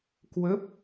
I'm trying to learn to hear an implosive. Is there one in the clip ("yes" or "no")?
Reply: no